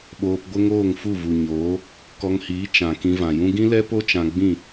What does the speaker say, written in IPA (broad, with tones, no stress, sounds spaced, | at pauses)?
ɓ oː˧ p ɡʷ ə˦ ŋ oː˦˨ ŋ f u˦˨ v u˨ ɲ oː˨˦ | k ɔ˧ ŋ h iː˨˦ t͡ʃ ã˨ k ĩ˧ v ã˨ j ũ˦ ɡ ĩ˦ l ɛ˦ p o˦ t͡ʃ ã˧ ɡ͡b ĩ˦˨